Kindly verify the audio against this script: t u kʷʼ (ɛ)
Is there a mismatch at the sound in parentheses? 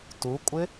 yes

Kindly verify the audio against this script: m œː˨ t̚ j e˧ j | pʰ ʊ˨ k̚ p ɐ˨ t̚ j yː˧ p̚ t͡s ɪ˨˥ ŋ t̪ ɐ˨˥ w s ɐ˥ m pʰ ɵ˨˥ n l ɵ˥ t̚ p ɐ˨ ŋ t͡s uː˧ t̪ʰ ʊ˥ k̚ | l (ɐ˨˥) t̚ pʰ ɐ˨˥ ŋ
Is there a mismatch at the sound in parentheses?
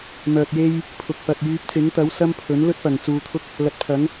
no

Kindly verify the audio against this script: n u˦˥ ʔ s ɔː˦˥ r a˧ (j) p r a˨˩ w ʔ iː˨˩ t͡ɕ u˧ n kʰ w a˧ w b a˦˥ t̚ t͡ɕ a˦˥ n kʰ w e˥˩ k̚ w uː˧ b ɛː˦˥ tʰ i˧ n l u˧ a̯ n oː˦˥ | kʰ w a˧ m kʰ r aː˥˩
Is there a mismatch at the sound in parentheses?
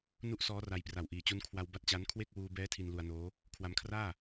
no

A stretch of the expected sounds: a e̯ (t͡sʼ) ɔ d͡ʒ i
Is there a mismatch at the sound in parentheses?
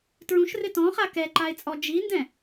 no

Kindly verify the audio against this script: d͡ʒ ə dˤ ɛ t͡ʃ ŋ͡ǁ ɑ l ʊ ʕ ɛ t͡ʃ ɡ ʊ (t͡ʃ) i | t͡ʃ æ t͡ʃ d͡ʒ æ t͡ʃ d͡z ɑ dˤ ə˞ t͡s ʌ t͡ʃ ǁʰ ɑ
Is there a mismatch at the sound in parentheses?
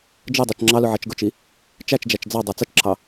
no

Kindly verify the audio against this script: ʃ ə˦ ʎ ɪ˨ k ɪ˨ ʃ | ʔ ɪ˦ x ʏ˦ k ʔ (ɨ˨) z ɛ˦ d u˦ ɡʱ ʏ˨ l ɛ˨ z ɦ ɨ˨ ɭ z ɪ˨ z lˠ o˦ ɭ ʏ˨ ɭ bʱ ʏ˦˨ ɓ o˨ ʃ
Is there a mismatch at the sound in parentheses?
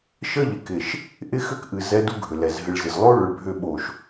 no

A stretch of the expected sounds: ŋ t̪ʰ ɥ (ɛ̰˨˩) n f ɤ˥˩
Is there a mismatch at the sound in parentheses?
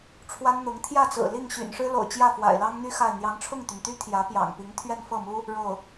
yes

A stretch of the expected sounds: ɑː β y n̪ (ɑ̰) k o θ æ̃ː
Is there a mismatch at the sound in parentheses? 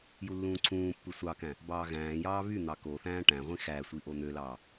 yes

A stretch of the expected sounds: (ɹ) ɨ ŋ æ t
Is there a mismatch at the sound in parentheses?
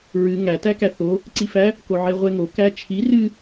no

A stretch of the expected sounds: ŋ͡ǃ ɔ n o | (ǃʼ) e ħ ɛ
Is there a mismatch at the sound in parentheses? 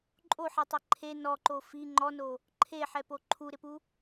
yes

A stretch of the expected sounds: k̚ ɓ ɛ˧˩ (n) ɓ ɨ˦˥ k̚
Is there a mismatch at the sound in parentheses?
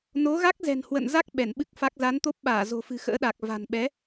no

